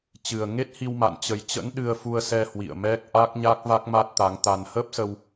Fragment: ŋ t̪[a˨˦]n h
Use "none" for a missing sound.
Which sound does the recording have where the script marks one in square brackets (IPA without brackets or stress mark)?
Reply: a˧